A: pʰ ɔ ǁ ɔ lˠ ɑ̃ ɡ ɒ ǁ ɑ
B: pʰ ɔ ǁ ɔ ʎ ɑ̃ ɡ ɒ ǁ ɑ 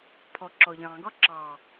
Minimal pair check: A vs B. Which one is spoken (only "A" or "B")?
B